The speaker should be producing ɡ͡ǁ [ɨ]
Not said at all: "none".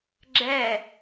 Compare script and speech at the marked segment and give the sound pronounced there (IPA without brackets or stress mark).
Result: ɛ